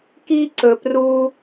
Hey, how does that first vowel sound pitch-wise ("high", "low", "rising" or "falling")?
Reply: high